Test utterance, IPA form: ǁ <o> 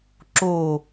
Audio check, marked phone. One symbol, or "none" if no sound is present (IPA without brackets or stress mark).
o